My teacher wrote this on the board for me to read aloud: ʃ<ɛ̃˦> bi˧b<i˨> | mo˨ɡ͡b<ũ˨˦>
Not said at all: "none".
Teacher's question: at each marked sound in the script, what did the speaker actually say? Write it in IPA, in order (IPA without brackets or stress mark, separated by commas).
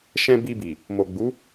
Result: ɛ̃˦, i˨, u˨˦